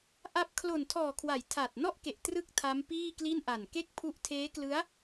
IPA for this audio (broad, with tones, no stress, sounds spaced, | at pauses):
ʔ a˦˥ p̚ kʰ l o˨˩ n tʰ ɔː˨˩ kʰ w a˩˦ j tʰ a˨˩ t̚ n ɔ˥˩ ʔ k e˨˩ ʔ t r ɯ˥˩ k̚ tʰ a˦˥ m p iː˥˩ k l i˥˩ n ʔ a˨˩ n k e˥˩ k̚ pʰ u˦˥ ʔ tʰ eː˦˥ k l ɯ˦˥ a̯